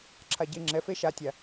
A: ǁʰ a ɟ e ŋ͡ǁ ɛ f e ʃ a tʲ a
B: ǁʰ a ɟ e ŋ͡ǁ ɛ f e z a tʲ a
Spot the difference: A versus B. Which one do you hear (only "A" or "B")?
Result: A